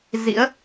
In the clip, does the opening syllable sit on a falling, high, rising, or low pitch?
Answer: rising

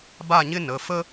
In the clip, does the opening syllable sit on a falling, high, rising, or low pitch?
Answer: falling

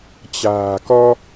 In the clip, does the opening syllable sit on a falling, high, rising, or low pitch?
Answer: low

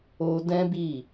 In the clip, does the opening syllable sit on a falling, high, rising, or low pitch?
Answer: high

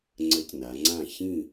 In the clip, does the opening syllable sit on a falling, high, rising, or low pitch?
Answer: rising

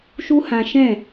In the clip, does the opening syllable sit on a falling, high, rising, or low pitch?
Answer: high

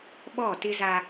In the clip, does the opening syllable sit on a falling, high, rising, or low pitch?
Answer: falling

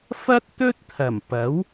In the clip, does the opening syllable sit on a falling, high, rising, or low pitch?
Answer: high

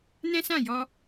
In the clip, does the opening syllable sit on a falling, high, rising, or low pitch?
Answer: high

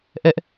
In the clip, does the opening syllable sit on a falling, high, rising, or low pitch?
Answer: high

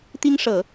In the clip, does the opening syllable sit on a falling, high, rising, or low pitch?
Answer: high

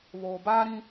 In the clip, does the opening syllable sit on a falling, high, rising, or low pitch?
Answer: low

